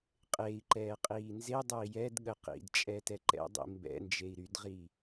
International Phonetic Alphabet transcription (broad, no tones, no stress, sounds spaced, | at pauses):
qʼ e i̯ ǃ ɛː qʼ iː n z e dˤ ɛ i̯ j ɛ d ɠ ə q ḭ d t͡ʃʼ ɛ t ɛ ǃ ɛ̰ dˤ ḭ m b ɛ̰ n d͡ʒ e i̯ ɾ y d ʁ i